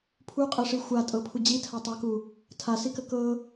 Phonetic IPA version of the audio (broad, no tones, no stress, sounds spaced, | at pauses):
pʰ u qʼ ə ʂ i xʷ a tʼ ɤ pʰ u d͡ʑ i tʰ a tˤ a k u | tʰ a s i k ə k ɤ